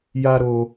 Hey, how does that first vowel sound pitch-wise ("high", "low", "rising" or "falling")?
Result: high